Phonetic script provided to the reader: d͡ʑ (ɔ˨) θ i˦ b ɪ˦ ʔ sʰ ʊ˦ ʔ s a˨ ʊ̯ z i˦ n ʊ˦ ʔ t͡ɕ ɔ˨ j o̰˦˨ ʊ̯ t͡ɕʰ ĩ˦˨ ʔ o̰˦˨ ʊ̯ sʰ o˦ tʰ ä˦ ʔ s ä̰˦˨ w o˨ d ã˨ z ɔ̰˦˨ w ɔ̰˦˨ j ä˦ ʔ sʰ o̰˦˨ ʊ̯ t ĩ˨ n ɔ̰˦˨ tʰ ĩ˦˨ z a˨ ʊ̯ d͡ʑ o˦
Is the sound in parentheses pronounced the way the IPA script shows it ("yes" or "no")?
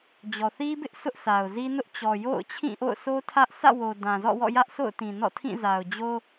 yes